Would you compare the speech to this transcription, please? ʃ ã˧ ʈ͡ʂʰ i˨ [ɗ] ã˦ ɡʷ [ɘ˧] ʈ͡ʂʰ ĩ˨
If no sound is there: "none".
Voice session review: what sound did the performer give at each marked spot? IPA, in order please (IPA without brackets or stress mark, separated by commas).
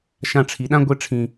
ɗ, e˧